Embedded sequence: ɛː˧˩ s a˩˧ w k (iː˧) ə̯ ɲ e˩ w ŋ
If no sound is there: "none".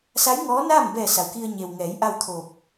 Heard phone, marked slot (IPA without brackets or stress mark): i˧